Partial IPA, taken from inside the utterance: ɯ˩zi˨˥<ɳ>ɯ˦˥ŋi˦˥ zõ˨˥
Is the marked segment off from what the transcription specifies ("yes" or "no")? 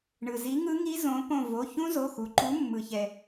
yes